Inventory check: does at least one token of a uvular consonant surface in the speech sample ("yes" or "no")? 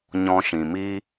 no